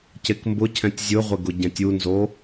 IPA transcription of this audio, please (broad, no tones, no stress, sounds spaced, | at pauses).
c e k m b ʊ cʰ ɛ̃ tʲ zʲ ʊ ʁʷ ɪ ɡ ʊ ɟ ɛ̃ tʲ u n z o